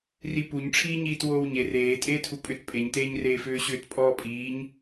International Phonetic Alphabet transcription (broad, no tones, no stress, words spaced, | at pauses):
ripuɲʈ͡ʂʰiːɲiːt woːwɲer eː tʼeːtʰupʼʏt pʼeɲteːɲreː fʏːɕʏːtpʼɔːpʼiːɲ